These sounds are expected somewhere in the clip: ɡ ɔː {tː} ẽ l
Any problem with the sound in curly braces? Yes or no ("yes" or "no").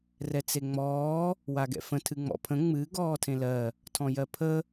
yes